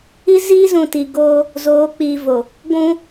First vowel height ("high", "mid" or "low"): high